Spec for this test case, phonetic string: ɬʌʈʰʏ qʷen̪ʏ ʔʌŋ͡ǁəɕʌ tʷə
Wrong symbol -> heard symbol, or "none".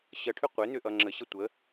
ɬ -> ɕ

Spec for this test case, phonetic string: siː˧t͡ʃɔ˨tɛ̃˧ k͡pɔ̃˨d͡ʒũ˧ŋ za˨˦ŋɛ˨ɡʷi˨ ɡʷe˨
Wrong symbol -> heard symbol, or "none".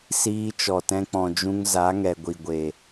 none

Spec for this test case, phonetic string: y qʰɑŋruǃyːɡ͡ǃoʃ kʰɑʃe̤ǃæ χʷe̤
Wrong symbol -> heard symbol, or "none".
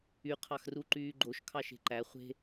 ŋ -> x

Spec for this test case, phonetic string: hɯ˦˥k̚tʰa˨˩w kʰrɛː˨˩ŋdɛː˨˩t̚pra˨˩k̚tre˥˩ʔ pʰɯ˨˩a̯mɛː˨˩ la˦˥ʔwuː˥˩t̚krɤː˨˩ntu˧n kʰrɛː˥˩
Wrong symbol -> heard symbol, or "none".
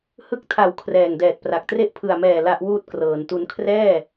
none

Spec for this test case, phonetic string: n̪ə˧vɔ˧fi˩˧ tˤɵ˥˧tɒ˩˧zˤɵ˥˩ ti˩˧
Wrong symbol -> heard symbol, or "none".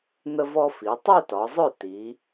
none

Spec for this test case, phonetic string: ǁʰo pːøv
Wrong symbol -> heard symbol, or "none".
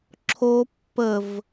ø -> ə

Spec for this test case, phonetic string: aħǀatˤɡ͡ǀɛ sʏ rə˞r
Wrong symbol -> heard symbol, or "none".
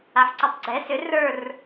none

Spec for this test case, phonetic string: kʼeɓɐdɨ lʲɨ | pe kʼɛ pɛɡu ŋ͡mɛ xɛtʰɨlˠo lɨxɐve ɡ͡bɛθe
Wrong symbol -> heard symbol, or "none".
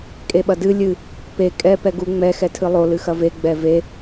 θ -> v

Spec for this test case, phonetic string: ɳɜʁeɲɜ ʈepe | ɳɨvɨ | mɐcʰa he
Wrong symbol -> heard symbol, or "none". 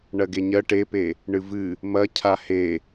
ʁ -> ɡ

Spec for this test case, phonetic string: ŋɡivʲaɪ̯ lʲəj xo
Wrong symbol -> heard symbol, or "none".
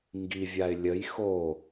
none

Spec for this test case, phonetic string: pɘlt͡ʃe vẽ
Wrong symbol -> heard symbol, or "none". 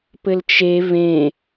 none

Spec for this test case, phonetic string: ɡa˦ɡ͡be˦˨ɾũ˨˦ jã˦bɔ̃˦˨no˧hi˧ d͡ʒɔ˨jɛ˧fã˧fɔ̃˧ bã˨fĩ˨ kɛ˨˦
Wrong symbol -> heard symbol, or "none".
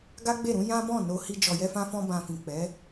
k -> k͡p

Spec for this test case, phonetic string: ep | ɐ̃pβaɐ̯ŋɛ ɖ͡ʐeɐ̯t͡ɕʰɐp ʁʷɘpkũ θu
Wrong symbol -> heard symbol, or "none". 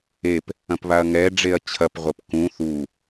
none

